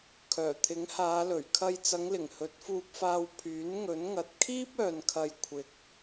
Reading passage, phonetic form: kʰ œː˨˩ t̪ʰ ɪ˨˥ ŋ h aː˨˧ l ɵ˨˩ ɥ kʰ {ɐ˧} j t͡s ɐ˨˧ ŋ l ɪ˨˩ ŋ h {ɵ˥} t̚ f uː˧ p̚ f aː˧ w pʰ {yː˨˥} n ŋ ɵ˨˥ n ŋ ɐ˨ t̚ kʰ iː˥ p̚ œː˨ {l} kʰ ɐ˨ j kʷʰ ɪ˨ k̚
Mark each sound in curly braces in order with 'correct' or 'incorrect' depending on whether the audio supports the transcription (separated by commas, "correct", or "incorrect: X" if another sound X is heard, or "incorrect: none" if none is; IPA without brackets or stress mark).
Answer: correct, incorrect: ɵ˨˥, correct, incorrect: n